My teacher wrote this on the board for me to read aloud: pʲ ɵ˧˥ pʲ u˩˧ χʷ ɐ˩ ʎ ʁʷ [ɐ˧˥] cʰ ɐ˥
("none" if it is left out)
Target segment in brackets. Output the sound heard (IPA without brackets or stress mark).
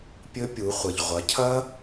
ɐ˩˧